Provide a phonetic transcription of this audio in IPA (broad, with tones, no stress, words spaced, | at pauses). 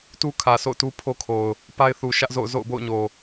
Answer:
tu˦kʰä˨sʰo̰˦˨ʊ̯ tu˦pʰo˦kʰo˨ʊ̯ | pa˦ɪ̯θu˨ʃä˦ʔzo̰˦˨ʊ̯ zo̰˦˨ʊ̯bo̰˦˨ʊ̯ɲo˨